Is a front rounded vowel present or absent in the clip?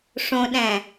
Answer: absent